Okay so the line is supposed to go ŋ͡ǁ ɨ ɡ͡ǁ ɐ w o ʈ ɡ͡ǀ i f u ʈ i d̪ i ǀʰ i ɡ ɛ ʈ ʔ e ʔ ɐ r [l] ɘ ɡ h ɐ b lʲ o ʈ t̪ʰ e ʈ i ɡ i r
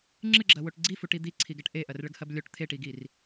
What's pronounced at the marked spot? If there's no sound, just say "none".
ɭ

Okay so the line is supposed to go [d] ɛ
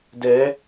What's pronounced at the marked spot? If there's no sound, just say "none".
d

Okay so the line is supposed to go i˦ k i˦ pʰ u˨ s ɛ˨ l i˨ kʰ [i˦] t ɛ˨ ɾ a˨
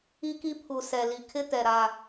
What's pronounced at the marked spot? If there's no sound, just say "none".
ɪ˦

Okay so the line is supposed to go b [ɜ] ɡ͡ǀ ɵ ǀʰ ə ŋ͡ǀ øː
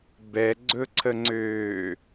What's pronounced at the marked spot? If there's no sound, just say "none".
ɛ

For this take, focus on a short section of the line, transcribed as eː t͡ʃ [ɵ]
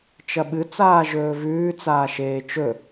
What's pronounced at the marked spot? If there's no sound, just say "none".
ɵ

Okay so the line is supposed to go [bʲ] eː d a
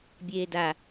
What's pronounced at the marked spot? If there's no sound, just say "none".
bʲ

